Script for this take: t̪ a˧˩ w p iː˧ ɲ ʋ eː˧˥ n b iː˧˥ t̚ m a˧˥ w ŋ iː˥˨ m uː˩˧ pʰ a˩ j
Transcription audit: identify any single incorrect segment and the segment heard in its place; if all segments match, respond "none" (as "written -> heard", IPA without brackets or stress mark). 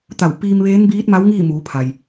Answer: ɲ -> m